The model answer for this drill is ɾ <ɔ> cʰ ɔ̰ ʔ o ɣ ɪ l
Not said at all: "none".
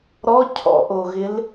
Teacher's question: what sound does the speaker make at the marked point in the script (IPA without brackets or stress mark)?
ɔ